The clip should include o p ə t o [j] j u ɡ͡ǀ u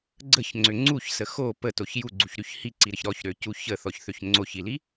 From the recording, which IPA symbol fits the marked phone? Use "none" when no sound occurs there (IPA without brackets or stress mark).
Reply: ç